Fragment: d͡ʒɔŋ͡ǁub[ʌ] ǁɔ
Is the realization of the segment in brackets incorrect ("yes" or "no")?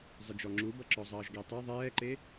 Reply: no